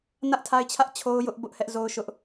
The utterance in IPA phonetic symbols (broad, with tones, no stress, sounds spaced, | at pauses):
n ä˦ ʔ tʰ a˦ ɪ̯ t͡ɕʰ ä˦ ʔ t͡ɕʰ o˦ ʊ̯ j ʊ˦ ʔ b ʊ˦ ʔ h ɛ˦ ʔ z o˦ ʊ̯ ʃ ʊ˦ ʔ